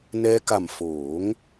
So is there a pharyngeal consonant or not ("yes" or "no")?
no